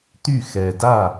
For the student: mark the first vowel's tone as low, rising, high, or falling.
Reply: falling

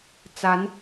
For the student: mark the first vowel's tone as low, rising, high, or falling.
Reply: rising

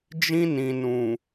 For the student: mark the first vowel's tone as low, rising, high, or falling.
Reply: high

